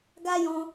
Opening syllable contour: high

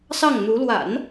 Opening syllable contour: falling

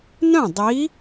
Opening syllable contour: falling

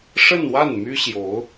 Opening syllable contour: falling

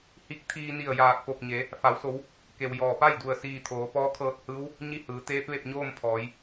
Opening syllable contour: rising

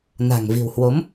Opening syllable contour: low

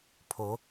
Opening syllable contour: rising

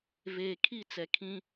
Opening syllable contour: low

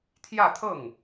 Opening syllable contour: falling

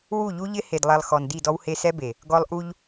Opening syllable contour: falling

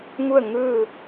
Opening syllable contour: falling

